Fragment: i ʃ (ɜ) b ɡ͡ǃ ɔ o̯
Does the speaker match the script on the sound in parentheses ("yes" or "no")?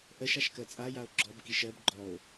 yes